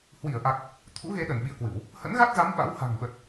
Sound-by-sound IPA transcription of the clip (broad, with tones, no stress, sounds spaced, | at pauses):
h w i˧˩ ə̯ ʔ a˨˩ k̚ | t̪ʰ ṵ˧˥ ɣ e˨˦ ɗ ə˧˩ n ɓ ḭ˧˨ ə̯ k w ɨ˧˩˨ w | h ə̰˧˥ n ɣ a˦˥ t̚ z a˨˦ m ɓ a̰˧˥ w h a̤˨˩ ŋ ɓ ə˨˩ t̚